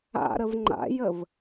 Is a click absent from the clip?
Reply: no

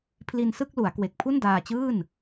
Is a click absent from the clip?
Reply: yes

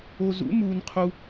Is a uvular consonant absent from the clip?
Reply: no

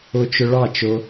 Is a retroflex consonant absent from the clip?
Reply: no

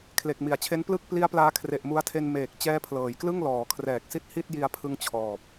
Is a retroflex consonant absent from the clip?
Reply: yes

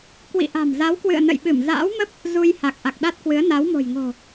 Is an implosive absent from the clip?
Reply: no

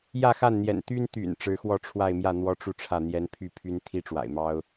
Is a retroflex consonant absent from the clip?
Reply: no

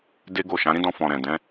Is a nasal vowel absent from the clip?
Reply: no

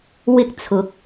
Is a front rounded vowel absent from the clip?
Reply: yes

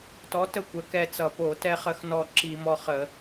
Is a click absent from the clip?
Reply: no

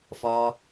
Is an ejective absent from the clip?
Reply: yes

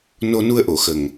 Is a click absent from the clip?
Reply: yes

